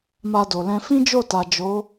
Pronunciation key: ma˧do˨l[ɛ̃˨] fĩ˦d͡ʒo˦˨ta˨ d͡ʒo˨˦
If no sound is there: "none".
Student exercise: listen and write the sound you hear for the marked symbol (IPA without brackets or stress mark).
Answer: ɛ̃˧